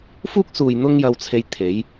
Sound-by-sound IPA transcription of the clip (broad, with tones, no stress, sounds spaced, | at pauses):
f uː˥ k̚ s uː˨ j n̪ ʊ˥ ŋ j ɐ˧ w t͡sʰ e˧ j t̪ʰ e˨˥ j